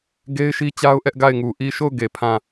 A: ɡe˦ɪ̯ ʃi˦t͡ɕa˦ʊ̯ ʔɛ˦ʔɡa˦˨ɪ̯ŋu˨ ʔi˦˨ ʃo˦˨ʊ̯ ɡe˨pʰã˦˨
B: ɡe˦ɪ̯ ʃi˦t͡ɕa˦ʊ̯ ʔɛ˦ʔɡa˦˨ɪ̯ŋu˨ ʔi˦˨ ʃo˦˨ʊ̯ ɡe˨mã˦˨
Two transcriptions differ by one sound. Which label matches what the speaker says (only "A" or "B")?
A